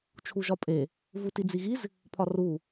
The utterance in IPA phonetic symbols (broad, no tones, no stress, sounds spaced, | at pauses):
t͡ʃʰ u ʒ ɒ pʼ e | v u t i d͡z i ɣ i z | pʰ ɒ r u